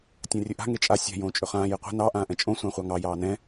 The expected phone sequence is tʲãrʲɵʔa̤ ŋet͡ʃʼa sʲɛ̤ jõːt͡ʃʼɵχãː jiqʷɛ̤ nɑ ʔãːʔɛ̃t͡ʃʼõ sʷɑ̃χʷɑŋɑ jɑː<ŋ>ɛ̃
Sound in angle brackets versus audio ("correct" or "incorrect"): incorrect